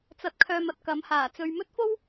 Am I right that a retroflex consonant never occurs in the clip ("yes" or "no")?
yes